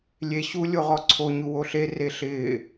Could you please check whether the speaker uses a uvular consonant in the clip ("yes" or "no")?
yes